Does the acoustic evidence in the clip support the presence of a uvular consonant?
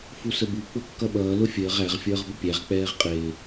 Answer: yes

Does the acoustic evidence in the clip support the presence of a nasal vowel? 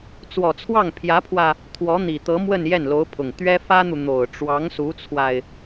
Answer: no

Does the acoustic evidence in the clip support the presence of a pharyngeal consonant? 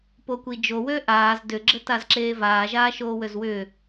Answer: no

